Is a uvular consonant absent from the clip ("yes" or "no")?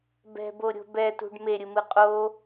no